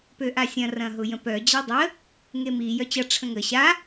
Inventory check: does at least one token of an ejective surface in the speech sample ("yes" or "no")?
no